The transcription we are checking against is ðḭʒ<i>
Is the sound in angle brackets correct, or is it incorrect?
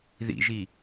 correct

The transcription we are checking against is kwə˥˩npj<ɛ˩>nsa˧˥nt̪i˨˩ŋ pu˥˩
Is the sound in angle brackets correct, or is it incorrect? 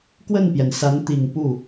correct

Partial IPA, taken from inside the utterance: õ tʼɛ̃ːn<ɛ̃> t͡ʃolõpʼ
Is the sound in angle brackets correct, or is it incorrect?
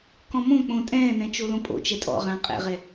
correct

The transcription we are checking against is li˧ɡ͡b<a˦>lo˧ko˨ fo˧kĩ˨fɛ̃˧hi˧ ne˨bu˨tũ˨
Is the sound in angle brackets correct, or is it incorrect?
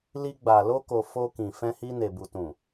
incorrect: a˨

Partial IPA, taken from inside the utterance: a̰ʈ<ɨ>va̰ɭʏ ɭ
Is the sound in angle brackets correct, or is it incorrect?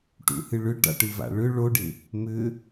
correct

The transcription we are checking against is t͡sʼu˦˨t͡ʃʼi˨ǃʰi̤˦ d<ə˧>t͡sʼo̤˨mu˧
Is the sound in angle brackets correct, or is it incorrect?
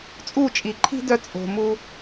incorrect: œ˧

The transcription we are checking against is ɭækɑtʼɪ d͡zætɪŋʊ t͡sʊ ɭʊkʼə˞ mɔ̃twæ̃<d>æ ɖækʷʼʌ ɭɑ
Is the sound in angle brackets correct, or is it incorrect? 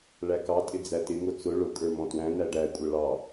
incorrect: n̪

